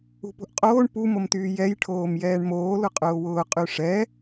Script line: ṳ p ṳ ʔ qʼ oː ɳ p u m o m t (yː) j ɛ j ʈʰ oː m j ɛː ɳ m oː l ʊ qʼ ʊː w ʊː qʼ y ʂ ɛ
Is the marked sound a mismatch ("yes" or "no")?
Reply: no